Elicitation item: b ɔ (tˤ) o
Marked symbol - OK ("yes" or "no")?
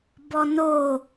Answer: no